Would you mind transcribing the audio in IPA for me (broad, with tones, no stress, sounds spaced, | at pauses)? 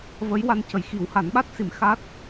v ə˧˥ j w a˧ n c ə˨˩ j x i˨˩˦ w h a˨˩˦ n ɓ a˦˥ t̚ s i˨˩˦ m x a˦˥ t̚